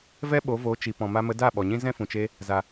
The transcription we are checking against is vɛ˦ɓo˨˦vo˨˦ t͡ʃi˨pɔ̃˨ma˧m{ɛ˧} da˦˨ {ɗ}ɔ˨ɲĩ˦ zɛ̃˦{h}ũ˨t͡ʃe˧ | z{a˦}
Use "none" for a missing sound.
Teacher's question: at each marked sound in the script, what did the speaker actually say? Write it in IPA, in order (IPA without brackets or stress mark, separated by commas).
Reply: ə˧, ɓ, f, a˨